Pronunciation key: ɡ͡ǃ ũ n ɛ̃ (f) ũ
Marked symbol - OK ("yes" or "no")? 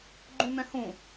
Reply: no